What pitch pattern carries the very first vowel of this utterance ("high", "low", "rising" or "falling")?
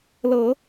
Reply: low